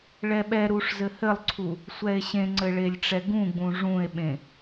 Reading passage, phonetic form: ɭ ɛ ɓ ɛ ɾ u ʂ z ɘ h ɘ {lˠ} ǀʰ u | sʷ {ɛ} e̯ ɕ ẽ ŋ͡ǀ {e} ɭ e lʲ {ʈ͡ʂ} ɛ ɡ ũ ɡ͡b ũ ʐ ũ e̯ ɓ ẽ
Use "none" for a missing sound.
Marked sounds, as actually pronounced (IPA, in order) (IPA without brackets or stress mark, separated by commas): lˠ, ɛ, ɘ, ʈ͡ʂ